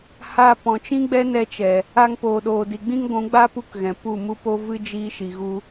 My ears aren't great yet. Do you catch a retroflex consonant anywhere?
no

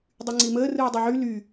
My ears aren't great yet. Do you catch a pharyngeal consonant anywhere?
yes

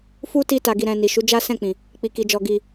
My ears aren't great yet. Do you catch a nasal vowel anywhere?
yes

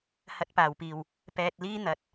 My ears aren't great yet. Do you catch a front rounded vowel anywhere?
no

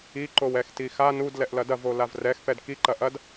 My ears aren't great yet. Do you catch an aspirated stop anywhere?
no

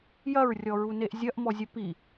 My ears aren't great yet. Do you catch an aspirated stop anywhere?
no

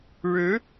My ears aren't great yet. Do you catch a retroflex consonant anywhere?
yes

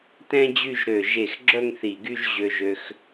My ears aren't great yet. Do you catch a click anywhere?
yes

